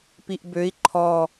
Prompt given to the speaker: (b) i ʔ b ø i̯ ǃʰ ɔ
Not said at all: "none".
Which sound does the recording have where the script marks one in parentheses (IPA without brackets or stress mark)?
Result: p